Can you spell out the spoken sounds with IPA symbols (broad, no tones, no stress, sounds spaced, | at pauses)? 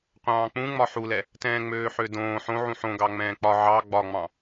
qʷ ɑ̃ː k͡p ũ ŋ͡m ɒ ħ u l ɛ | t ɛ̃ː ŋ͡m øː ħ ø d õː ħ õ ʕ ũ ħ õ ɡ ɑ ŋ͡m ɛ̃ː k͡p ɒ ʕ ɑ ɡ͡b ɒ ŋ͡m ɑ̃